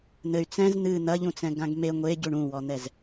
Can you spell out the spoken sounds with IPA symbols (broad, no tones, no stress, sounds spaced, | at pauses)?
n̪ ɘ y̯ t͡s ɛ̃ z n̪ ɨ n̪ ɐ ʎ ũ t͡s ɛ̃ ɡ ã ɡ m e ŋʷ e ɟ u ɳ ũ w ɔ n̪ ɛ z